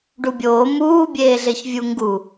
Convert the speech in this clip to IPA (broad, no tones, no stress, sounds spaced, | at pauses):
ɖ u bʲ oː m uː bʲ eː ɮ e ç vʲ u ŋ ɡ u